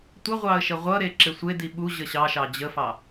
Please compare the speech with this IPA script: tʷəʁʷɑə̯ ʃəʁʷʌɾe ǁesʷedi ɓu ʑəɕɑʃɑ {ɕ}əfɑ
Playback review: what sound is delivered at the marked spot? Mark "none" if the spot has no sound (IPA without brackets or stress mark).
d͡ʑ